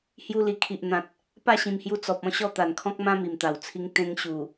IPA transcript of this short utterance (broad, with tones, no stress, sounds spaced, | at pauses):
h j u˧ l i˨˩ kʰ i˨ ʔ n̪ ã˨ t̚ | p a˥˧ ɕ ĩ˨˩ m h j u˧ t͡s ɔ˨ p̚ ɔ̃˧ ɕ ɔ˥˧ t̪ a˨˩ n kʰ ɔ̃˦ k̚ m ã˦ m i˨˩ m t̪ a˨˩ w t͡sʰ i˧ ŋ t̪ ẽ˧ ŋ ɕ u˨˩